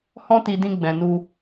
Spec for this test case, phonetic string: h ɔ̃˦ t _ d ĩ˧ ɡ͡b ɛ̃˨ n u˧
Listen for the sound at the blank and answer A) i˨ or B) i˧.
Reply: B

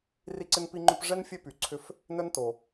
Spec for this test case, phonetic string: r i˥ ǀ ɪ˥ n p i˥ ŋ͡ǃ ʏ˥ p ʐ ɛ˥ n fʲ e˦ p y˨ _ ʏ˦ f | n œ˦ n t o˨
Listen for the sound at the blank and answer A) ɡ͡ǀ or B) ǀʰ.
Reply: B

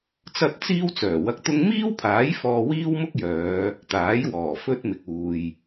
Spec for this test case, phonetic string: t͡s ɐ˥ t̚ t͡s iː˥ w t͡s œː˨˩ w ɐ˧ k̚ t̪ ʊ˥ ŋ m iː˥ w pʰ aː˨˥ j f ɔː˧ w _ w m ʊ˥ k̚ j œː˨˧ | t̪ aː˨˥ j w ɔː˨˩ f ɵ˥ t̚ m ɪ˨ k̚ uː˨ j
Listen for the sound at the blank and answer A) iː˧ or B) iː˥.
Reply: B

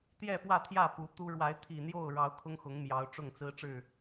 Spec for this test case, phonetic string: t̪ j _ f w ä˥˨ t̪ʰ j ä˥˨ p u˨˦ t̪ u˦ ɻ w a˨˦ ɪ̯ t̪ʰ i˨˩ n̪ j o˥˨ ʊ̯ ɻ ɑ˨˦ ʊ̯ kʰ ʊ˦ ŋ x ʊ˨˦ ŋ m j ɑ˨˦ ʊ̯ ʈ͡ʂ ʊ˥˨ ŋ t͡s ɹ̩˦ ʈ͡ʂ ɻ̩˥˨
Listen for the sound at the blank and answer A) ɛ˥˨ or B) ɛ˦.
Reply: A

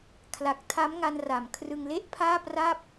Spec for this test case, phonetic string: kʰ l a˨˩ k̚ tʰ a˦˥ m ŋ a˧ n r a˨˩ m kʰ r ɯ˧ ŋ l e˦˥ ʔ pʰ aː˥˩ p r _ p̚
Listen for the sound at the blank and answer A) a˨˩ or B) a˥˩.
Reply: B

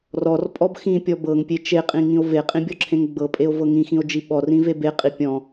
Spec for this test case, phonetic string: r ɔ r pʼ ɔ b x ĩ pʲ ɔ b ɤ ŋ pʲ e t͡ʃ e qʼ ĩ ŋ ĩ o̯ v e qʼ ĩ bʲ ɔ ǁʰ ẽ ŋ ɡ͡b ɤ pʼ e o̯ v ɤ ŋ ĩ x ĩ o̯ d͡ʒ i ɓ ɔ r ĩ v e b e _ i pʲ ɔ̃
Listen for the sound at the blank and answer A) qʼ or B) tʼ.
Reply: A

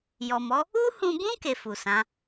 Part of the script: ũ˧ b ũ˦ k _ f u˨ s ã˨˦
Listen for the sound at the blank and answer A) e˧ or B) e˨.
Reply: A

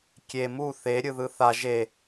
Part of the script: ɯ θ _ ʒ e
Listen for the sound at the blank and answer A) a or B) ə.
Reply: A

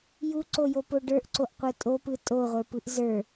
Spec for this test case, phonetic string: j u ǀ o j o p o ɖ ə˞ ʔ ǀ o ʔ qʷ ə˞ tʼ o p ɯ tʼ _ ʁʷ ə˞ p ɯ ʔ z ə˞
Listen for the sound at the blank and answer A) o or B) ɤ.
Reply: A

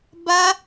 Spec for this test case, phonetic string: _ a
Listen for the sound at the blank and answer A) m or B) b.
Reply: B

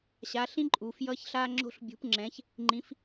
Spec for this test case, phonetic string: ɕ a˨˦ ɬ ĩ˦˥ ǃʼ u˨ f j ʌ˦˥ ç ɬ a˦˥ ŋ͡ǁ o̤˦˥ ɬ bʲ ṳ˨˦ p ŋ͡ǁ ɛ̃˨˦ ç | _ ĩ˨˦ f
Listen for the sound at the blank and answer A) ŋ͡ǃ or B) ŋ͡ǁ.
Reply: A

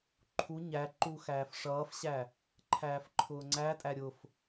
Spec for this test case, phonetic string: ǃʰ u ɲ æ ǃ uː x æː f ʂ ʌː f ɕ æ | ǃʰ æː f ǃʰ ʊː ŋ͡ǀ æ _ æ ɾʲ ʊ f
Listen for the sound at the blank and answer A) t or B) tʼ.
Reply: B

